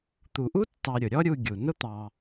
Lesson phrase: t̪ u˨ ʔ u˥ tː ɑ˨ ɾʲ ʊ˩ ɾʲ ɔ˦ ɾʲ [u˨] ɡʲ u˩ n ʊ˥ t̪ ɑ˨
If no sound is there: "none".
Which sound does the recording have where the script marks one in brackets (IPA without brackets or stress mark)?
u˨